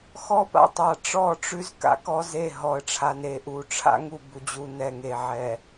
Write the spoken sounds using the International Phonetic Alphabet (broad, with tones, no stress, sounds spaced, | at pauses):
x ɔ˦ p a̰˦ tˤ a˨ ʈ͡ʂ ɔ˦˨ ʈ͡ʂ ʉ˦ z k a̰˨ k ɔ˦ z e˦˨ ɦ ɔ˨ ə̯ ʈ͡ʂʰ a˨ n e˨ ʔ u˨ ʈ͡ʂʰ a̰˦ ŋ u˦˨ b u˨ d͡ʑ u˨ n ɛ˨ ŋ e˨ ʕ ɛ˨